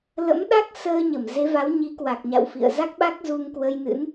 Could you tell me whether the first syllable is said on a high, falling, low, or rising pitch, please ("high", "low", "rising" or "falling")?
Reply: rising